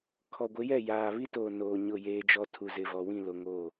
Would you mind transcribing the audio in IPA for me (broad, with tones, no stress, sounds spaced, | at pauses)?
kʰ ɔ˨ ɡʷ ɪ˨˦ j ɛ˦˨ j aː˨ β i˦ t oː˨ n oː˨ ɲ ʊ˦˨ j eː˦ d͡ʒ ɔ˦ tʰ u˨ z ɪ˨ v ɔ˨ w ĩ˦˨ l o˨ ŋ o˦˨